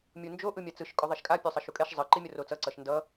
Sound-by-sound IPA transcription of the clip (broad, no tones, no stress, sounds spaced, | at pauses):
mʲ u n d͡ʒ o ʔ ɯ mʲ a t͡s ɯ ʃ kʼ o ðˤ ɛ ʃ kʼ a pʲ o sˤ ʌ ʃ u kʼ ɛ ʃ zˤ ɯ ǃ i mʲ ʌ r o t͡s ʌ ǀ ʌ ʃ n d ʌ